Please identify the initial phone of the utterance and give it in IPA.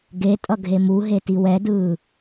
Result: ɡ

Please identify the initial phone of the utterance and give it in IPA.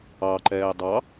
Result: ɑ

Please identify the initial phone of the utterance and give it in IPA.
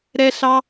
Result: ɾ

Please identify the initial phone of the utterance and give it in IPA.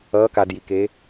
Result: ʌː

